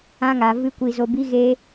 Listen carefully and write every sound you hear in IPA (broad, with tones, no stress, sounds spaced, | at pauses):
ã˧ ŋ a˨ v ɨ˦ kʷ i˧ z o˧ b i˦ ɣ eː˦